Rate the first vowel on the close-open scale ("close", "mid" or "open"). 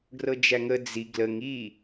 mid